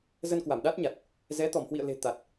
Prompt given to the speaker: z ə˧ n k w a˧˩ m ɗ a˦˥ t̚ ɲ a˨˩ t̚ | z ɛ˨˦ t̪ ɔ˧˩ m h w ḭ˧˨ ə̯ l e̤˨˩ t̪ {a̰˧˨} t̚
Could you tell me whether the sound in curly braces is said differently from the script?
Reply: yes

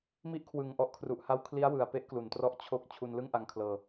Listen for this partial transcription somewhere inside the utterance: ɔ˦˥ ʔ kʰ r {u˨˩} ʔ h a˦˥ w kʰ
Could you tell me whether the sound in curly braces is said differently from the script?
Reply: no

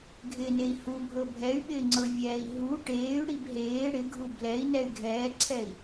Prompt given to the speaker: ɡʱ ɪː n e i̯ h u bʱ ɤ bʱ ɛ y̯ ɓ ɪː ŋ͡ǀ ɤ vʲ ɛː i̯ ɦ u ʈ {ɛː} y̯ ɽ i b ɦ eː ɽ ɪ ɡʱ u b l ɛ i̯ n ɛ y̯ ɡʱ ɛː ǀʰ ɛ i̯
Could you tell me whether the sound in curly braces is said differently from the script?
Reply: yes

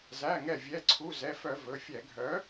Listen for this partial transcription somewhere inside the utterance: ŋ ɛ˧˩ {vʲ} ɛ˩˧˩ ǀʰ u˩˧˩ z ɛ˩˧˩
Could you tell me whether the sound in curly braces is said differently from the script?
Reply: no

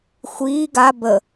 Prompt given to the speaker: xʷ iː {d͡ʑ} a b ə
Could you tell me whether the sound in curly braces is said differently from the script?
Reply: yes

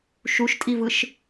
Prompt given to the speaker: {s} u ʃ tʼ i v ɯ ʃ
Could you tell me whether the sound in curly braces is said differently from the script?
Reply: yes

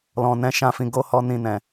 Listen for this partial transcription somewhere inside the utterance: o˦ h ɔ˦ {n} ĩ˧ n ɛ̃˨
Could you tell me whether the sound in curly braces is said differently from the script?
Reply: no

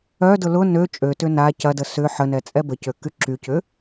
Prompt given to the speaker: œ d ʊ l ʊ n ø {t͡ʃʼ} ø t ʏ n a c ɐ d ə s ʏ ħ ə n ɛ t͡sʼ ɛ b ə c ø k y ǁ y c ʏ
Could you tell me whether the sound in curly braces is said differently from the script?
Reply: no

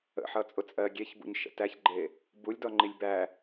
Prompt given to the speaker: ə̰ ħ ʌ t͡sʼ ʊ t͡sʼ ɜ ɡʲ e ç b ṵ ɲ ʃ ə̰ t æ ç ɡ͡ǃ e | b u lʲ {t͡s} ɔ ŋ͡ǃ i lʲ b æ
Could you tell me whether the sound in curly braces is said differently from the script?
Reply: yes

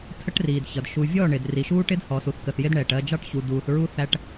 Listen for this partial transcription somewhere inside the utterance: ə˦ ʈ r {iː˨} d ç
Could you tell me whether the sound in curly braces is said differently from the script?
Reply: no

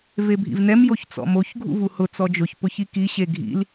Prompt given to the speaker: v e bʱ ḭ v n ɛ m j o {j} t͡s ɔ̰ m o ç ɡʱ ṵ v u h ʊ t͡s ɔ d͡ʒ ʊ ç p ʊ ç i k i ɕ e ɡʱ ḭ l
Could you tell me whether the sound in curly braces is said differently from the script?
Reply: yes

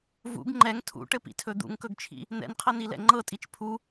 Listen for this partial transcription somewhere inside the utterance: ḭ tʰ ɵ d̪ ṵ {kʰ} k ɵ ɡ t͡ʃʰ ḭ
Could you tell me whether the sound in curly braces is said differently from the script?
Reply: yes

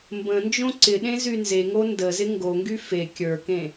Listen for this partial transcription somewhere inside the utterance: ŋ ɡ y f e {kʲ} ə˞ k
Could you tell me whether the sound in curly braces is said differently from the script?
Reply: no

